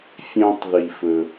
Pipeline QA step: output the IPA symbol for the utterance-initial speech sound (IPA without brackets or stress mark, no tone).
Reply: fʲ